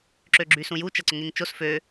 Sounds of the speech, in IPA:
ǁ ø ɡ͡ǁ y s ũ j u t͡ʃ ɐ ǀ ʊ ŋ e ŋ t͡ʃ o s f ø

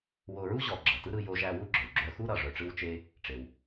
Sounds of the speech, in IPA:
w o˧ ɹ u˥ ʑ ɔ˧ ɡ͡ǁ ʌ˩ t ɯ˥ ɾ ɯ˧ j o˧ ʒ æ˧ w u˥ ɡ͡ǁ œ˩ w ɡ͡ǁ œ˧ x u˥ ɾ ʌ˧ ʐ œ˧ ʈ͡ʂ ɯ˥ w t͡ʃ e˥ | ʈ͡ʂ e˩ w

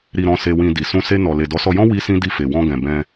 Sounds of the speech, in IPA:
ɾ i˨ ɾ ɔ̃˨ s e˧ w ĩ˧ d i˨ s ũ˧ s e˧ n ɔ˨ l e˨ d ɔ˨˦ s ɔ˧ j ɔ̃˦ w i˦ s ĩ˦ d i˧ f e˨ w ɔ̃˧ ɡ ɛ̃˨ b ɛ̃˧

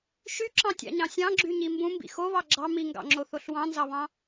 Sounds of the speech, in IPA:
ʃ y ǁ ɑ̃ tʲ ɑ̰ ɲ ɑ̃ sʲ ɑ̃ ɡ͡ǁ y ɲ i m b ũ m b ḭ x o β ɑ ɡ͡ǁ ɑ m i ŋ ɡ ɑ̰ ŋ͡ǁ o θ o ɬ w ɑ̃ n z ɑ β ɑ̃

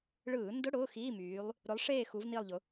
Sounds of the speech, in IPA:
ɭ ɯː˧˩˧ n d ʊ˧˥˧ ɽ ʊː˧˥˧ x iː˧˥˧ m yː˨˦ lˠ | ɾ ʊ˨˦ lˠ ʂ eː˦˨ x u˨˦ v n i˦˨ lˠ ʎ ʊ˨˦

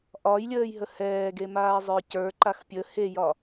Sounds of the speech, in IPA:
ʔ ɒ j lʲ əː j ɦ ə h ɛː ɡ e m aː zˤ ə˞ c ə˞ ǃ a x pʲ ə h e j ɒ

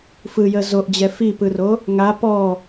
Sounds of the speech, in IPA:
f ɯ j ə z o ʔ d͡ʑ ɛ f i p ɯ r o | ŋ a p ɔ

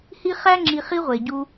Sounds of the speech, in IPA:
h i˥ χ æ˥ ŋ͡ǁ i˧ χ i˥ ʁʷ e˩ ɟ u˧

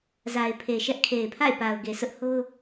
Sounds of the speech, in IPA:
z a˨ ɪ̯ pʰ e˨ ʃ ɛ˦ ʔ kʰ e˨ ɪ̯ pʰ a̰˦˨ ɪ̯ p a˨ ʊ̯ ɡ e˨ s ʊ˦ ʔ h o˦ ʊ̯

